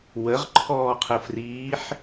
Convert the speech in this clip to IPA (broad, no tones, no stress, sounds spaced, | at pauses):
w ə ʁ ǃʰ ɔː qʰ ə f r iː ħ